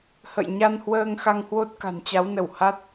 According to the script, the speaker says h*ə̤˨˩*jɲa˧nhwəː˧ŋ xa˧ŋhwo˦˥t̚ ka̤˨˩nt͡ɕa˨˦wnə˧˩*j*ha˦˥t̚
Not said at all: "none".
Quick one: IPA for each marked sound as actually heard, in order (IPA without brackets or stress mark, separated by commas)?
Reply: ə̰˧˨, w